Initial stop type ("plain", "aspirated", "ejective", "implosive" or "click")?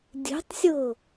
plain